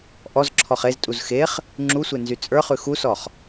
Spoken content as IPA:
ʔɔzǁʰɔχ eztʼuz xeχ | ŋ͡ǁusʷe nzyt͡sʼə˞χʉ xusɔχ

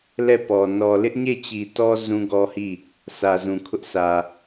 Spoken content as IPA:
lɛ˦˨pɔ˨ nɔ˨ lɪ˦ʔɲe˦˨ t͡ɕi˨tɔ˦ zũ˦ɡɔ˦hi˦˨ | sä˨ zũ˨kʰʊ˦ʔ sʰä˨

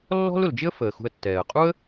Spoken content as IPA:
lːɔ̤˥l ʊ˩ld͡ʒɪ˥ə̯ fəː˩xṳ˨ə̯ tːɛː˩ə̯qʼu˥ə̯

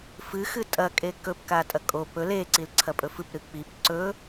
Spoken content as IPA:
fɨxɨ tʼɐkʼe kɵpkatʼɐ kʼo pɵ leǀilǀʰɐpʼɵ fɨpɾɨ k͡pip ǀɵ

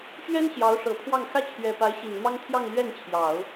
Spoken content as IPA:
ɕɥɛ˥n ɕjɑ˧˥ʊ̯ʂɤ˨˩pʰwɑ˥˩ŋ xä˥t͡ɕʰɥɛ˨˩pa˧˥ɪ̯ ɕi˨˩nmɑ˥ŋt̪ʰjɑ˥˧ŋ lɥɛ˥˩nt͡ɕʰjɑ˨˩˦ʊ̯

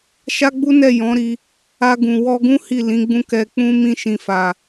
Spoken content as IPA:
ʃa˦ɡ͡bu˦nɛ˦˨jɔ̃˨˦ ɾi˧ | a˧ɡũ˨wɔ˧ɡũ˦ hi˦˨lĩ˨˦ɡ͡bũ˦ kɛ˧k͡pũ˦ mĩ˧ʃĩ˨fa˨

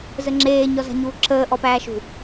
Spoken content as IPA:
zəŋ͡ǁeː ɲɔza̤ɲuːǁʰəː ʔɔpæːʃṳ

